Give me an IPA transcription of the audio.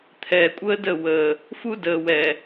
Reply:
t̪ʰ ɛː˨ kʷʼ əː˦ d ə˦˨ w əː˨ | f u˦ d əː˨ w ɛ˨

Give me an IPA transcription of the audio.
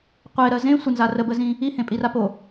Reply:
qʷ e ɾ ɜ z ẽ sʷ ə n z a r ə b ə z ĩ | i h ẽ pʼ i r a p o

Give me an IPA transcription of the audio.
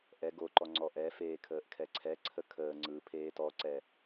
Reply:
ʔ ɛ ɡ o ǃ ɔ ŋ͡ǀ ɔ ʔ ɛ f eː kʰ əː ʔ kʰ ɛ ǀʰ ɛ ǀʰ ə kʰ əː ŋ͡ǀ ɯ pʰ eː t ɔ ǀ ɛ

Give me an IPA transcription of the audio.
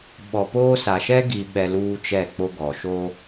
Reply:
ɓ ɔ˨ p oː˦ s a˨ ʃ ɛ˦ ɡ i˨ ɓ ɛ˨ l uː˦ t͡ʃ ɛ˦˨ k͡p o˦ ɡ ɔ˨ ʃ o˦

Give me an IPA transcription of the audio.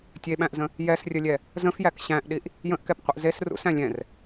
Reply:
tʲ e ɓ æ̃ ʔ z ə̃ | j ɛ s rʲ ə lʲ ɛ | z ə̃ f j æ k ɕ æ̃ ʔ ɗ i ʔ | j ə̃ ʔ k ɛ p qʷ ə ʔ z e s r ṵ s æ̃ lʲ ɛ̃ r

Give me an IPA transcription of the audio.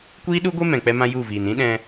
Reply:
kʷ iː˦ ɗ u˦ ɡʷ e˦ m ɛ̃˨ k͡p ɛ˧ m ã˧ j u˦˨ v iː˨ n ĩ˦ ɗ ɛ̃˧

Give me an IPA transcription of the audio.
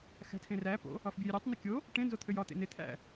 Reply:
x æ̤ tʰ ẽ r æ p o̰ | ɒ f bʲ ø j ɾʲ ø tˤ n ə kʲ o | ʈ ẽ n z o t̪ʰ ø j ɒ t̪ ḛ n e t̪ʰ æ̰

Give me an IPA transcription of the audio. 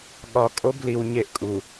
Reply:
ɠ ɒ˨ kʼ o˦ b l i˨ w ɲ e˦ ʔ kʼ u˨

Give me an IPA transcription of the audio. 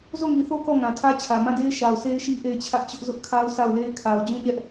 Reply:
z o˦˨ ŋ i˨ θ o˦ k ɔ˦˨ ŋ ã˨ tʰ ä˦ t͡ɕʰ ä˨ m ã˦˨ d e˦ ɪ̯ ʃ a˨ ʊ̯ s e˦ ɪ̯ ʃ i˦ ʔ e˦˨ ɪ̯ t͡ɕʰ ä˦ ʔ t͡ɕ ʊ˦ ʔ z ʊ˦ ʔ kʰ a˦ ʊ̯ sʰ a˦˨ ʊ̯ l e˦ ɪ̯ kʰ a˨ ʊ̯ d͡ʑ ũ˦˨ ɲ ɛ˦ ʔ

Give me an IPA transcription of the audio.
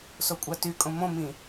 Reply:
s o kʷʼ ɑ t y kʼ õ m õ m ĩ

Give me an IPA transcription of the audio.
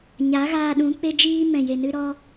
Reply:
ɲ a˨˦ ɣ aː˧ ɗ ũ˨˦ k͡p e˧ d͡ʒ iː˧ m ɛ̃˨ j e˨ n ɨ˧ ɾ ɔ˧

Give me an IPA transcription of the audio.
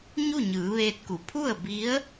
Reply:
ɲ u˥˨ ɲ ɯː˩˧ ʋ eː˧ t̚ k u˩˧ pʰ u˥˨ ə̯ b i˧˥ ə̯

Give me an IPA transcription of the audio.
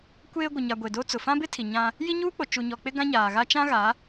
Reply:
kʷ eː˦ ɡʷ ɪ˨ ɲ a˨ ɡʷ e˨ d o˦ t͡s ʊ˨ f ã˦ b ɪ˦ tʰ i˨ ɲ ã˦ | j i˦ ɲ uː˦ k͡p o˨ t͡ʃ u˨ ɲ ɔ˨ k͡p ɪ˦ ɡ ã˦ ɲ aː˨ ɣ a˦ t͡ʃ ã˦ ɣ a˨˦

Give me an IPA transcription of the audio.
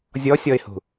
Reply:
zʲ ɔ sʲ ɔ ɪ̯ h ṳ

